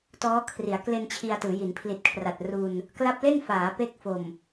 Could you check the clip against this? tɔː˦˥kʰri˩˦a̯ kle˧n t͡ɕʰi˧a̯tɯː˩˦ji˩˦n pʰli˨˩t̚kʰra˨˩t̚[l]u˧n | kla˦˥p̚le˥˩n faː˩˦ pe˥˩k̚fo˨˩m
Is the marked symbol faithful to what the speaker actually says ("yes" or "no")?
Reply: no